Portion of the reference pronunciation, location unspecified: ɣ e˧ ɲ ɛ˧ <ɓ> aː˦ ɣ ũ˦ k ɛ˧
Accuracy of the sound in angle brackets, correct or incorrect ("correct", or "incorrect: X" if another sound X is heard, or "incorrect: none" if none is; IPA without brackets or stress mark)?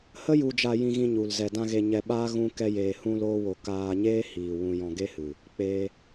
correct